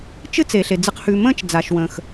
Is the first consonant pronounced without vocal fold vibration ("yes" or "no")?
yes